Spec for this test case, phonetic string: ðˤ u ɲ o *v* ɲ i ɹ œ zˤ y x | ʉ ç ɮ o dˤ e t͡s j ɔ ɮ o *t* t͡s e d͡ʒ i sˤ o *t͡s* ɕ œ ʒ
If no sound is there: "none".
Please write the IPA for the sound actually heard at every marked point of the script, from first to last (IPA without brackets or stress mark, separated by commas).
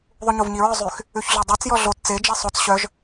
v, t, t͡s